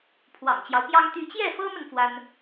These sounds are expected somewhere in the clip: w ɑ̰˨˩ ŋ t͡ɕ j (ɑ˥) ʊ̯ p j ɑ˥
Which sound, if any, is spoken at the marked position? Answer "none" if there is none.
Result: ɑ˦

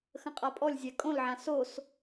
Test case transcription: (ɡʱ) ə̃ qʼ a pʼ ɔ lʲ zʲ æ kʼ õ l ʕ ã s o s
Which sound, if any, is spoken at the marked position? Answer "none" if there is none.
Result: x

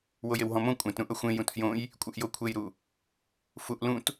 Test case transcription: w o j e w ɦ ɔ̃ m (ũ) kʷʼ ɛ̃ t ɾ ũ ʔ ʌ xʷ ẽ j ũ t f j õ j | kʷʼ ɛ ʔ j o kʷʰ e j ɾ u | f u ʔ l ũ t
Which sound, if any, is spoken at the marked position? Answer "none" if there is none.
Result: õ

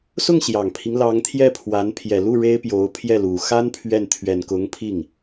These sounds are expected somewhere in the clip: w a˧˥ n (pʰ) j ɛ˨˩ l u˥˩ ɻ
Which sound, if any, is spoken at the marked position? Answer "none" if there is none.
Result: pʰ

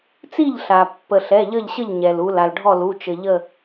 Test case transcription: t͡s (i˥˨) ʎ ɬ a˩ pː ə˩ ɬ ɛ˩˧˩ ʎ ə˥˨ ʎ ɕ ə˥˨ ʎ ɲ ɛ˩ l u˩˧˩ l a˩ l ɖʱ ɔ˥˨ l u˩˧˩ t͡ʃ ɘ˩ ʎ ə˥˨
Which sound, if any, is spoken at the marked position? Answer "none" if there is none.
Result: i˥˨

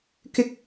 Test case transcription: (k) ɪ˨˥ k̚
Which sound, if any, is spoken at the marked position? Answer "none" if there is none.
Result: k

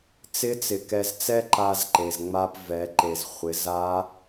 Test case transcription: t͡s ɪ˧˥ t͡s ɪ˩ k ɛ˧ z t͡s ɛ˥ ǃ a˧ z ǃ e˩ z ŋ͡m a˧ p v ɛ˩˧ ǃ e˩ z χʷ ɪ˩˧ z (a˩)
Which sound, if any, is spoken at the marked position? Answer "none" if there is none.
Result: a˧˥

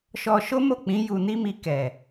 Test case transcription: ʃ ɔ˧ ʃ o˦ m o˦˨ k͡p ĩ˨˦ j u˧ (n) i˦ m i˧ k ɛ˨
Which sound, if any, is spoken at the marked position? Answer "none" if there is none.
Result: n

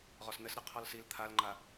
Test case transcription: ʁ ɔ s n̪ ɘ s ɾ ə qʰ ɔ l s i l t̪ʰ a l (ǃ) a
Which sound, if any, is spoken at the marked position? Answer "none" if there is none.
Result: ŋ͡ǃ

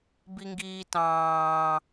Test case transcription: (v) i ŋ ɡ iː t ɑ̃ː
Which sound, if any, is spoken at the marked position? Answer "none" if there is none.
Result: b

